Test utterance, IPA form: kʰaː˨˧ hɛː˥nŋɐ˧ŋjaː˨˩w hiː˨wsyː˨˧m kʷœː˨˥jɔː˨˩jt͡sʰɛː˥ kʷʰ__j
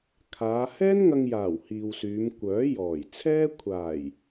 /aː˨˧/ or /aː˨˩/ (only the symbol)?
aː˨˩